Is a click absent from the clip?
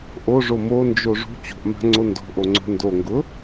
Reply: no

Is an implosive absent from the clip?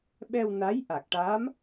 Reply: no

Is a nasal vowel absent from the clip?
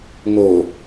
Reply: yes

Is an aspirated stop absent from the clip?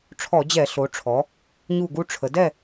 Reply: no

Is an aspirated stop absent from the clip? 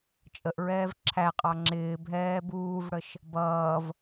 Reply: no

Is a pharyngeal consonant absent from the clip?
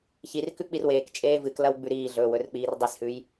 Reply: yes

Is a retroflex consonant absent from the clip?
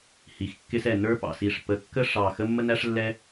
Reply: no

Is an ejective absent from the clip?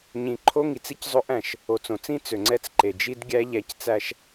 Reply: yes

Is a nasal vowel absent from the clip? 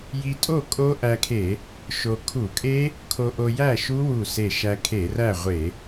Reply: yes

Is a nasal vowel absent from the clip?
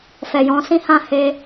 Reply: no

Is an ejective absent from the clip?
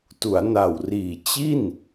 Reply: yes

